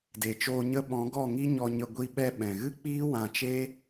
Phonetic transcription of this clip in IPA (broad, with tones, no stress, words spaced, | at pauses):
de˨t͡ʃoː˧ ɲə˧ ɓɔ̃˨˦ɡɔ˦˨ŋi˦ ɲɔ˧ɲə˧ ɡʷi˧ɓɛ˧ ɓɛ̃˨ɣɨ˦k͡piː˦ wã˧t͡ʃe˦